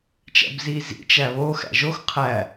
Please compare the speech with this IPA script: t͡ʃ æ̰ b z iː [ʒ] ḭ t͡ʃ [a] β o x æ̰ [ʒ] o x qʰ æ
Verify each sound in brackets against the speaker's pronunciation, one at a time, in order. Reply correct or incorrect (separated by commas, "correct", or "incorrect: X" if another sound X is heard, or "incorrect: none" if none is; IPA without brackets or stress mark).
incorrect: z, incorrect: æ, correct